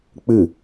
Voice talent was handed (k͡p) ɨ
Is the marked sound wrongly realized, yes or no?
no